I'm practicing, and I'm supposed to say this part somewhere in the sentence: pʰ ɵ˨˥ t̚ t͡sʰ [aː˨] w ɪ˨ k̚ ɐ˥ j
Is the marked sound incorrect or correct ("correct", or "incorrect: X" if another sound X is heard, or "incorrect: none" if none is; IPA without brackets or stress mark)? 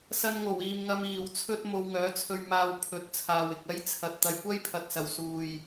correct